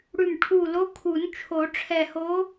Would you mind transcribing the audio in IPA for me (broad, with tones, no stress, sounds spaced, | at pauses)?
ɽ ʉ˧˩ m ʈʰ u˧˩ l o˧˥ kʰ u˨˩˦ n t͡ʃʰ o˨˩˦ ʈ͡ʂʰ ɛ˧˩ h o˧˥